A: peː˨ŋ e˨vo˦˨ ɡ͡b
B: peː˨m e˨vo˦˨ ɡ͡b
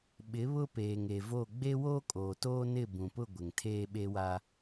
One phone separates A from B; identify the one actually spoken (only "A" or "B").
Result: A